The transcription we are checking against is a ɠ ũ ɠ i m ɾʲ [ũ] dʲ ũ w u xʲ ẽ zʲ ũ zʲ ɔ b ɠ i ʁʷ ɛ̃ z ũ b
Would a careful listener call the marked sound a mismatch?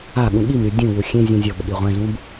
yes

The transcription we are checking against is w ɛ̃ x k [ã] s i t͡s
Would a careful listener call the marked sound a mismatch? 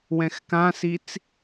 no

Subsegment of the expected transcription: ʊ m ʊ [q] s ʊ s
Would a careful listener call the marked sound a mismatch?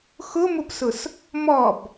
yes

